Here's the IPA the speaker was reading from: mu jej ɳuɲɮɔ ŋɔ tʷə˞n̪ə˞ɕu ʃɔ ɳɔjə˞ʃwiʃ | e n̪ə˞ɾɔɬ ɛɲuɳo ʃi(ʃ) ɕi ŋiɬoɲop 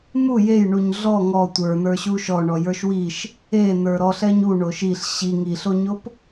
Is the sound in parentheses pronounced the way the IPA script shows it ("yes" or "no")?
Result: no